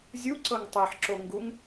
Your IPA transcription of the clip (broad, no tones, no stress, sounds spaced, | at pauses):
zʲ u ǀ ɤ ŋ tˤ e ħ ǁ o ŋ ɡ u ŋ